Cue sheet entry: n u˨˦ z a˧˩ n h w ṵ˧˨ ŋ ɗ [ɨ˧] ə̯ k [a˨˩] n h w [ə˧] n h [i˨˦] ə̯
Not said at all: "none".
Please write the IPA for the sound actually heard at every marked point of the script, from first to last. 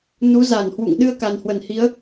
ɨ˧, a˨˩, ə˧˩, i˨˦

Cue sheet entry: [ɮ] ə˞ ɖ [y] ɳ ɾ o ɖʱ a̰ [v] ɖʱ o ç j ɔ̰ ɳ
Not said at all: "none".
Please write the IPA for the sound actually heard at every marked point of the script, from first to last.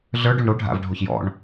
ɮ, u, v

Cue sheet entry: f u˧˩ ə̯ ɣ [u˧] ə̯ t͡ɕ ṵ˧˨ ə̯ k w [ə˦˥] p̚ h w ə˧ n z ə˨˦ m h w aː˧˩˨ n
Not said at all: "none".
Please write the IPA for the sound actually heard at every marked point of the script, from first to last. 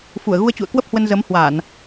u˧, ə˦˥

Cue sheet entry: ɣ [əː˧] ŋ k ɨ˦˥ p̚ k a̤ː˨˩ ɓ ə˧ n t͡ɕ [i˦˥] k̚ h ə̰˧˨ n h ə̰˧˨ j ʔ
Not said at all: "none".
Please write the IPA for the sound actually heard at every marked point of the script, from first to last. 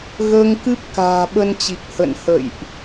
əː˧, i˨˩

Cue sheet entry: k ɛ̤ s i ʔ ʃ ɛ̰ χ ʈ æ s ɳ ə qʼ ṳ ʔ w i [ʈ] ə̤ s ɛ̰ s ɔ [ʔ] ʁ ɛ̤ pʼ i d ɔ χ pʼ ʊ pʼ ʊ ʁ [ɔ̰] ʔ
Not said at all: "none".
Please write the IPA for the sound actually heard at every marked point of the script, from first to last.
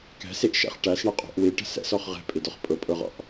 ʈ, χ, ɔ̰

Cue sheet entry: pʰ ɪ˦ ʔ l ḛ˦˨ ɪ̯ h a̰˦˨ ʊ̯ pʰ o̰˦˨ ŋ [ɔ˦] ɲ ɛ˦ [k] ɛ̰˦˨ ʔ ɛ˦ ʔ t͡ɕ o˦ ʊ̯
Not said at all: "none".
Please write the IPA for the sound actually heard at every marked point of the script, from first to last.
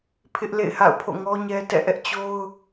ɔ˦, t

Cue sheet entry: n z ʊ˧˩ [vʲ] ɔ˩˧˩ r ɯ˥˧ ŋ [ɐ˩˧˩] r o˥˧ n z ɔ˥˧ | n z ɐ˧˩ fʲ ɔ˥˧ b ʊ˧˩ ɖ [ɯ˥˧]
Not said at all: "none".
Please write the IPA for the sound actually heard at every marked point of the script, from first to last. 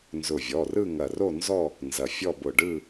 vʲ, ɐ˧˩, ɯ˥˧

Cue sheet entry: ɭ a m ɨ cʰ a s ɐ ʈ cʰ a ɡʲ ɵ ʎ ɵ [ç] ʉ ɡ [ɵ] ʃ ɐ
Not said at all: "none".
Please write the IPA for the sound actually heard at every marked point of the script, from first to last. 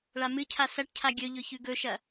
ç, ɵ

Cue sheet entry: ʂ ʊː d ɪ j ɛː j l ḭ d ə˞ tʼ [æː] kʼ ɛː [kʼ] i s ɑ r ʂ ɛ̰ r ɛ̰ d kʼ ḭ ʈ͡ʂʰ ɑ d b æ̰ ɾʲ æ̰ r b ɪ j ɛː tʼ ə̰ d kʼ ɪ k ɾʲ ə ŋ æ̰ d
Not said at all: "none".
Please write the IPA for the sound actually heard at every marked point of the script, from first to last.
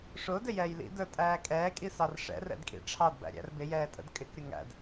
æː, kʼ

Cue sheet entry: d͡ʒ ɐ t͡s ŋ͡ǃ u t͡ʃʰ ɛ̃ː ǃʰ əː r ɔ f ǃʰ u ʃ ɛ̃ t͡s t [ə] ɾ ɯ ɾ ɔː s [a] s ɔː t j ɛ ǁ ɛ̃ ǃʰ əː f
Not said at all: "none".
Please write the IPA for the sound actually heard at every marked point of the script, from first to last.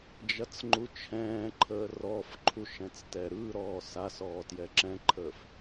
ɛ, a

